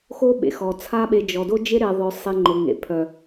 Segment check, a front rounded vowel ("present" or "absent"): present